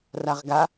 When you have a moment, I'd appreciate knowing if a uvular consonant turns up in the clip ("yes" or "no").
yes